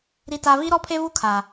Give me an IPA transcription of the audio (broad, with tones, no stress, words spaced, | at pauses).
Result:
ɾi˦ta˦ vi˦ɾɔ˦pʰe˦ vu˦kʰaː˨